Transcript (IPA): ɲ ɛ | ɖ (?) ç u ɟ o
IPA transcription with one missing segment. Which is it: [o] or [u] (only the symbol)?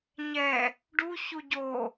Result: u